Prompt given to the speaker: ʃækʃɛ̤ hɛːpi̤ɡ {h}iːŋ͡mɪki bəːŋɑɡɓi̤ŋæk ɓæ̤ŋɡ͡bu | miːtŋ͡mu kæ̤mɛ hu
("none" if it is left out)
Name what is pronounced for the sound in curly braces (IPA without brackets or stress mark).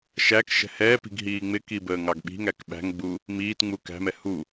ɦ